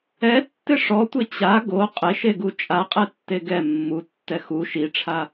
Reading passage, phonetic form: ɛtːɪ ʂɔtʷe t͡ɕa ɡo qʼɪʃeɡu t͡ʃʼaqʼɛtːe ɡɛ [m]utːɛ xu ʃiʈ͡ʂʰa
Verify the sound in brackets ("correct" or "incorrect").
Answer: incorrect